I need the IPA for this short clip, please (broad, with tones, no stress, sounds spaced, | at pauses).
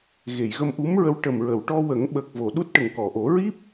ɣ e˨˩˨ j ɣ ə˧ m ʔ u˧˥ m ɹ ə˧˥ w ʈ ə˨˩ m ɹ ə˨˩˨ w ʈ ɔ˧ w ə˨˩˦ ŋ ɓ əː˨˩ k̚ v o˨˩˨ ɗ u˦˥ t̚ ʈ ə˨˩ ŋ k ɔ˨˩˨ ʔ o˨˩˦ ɹ i˦˥ p̚